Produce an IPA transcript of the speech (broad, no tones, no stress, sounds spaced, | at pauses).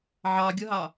ʕ ɑ ɡʲ ʌ ɦ ɑ